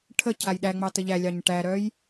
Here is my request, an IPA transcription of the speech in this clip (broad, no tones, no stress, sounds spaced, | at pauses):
ʈʰ ə cʰ a j ɗ æ ŋ͡m ɑ t ə ʎ æ lʲ ɑ ɲ ʈ æ ɾ œ j